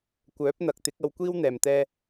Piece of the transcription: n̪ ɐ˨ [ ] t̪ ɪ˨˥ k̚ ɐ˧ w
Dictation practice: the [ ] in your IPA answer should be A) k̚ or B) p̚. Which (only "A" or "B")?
A